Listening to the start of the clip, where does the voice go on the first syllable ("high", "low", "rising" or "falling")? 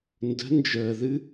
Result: rising